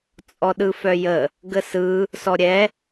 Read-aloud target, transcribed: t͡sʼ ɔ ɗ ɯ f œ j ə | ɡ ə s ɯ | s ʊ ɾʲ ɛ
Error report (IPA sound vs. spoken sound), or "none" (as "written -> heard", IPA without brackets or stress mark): ʊ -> ɔ